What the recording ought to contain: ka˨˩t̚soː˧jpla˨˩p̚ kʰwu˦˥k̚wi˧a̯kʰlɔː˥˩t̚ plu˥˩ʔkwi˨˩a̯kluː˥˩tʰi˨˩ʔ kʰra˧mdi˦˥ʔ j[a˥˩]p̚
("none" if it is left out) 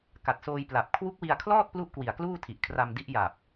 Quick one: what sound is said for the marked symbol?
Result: a˨˩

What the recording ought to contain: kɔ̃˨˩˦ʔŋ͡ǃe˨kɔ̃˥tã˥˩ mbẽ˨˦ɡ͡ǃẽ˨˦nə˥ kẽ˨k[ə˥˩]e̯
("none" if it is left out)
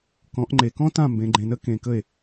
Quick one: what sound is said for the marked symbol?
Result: ə˥˩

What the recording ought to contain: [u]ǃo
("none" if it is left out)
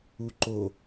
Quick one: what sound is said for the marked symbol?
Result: u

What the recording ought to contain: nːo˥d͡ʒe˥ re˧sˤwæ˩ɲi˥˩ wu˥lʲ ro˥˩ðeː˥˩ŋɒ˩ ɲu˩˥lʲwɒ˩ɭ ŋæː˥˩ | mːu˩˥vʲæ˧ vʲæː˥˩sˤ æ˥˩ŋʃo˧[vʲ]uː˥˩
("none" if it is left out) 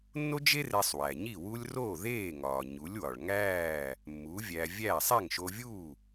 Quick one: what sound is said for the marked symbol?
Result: vʲ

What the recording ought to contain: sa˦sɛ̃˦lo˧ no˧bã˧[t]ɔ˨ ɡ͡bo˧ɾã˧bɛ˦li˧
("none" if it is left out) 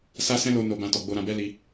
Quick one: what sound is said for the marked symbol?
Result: t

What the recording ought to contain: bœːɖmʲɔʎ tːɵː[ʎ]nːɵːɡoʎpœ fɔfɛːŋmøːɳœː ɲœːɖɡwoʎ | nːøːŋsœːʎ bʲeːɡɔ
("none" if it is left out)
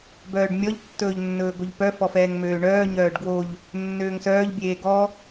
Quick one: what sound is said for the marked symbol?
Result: ʎ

